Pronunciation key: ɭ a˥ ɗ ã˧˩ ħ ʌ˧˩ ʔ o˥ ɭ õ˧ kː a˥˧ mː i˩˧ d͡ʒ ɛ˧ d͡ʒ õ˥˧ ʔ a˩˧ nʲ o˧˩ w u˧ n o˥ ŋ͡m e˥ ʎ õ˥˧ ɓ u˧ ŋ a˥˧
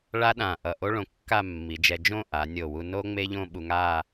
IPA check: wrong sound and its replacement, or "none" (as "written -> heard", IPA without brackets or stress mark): ħ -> ʔ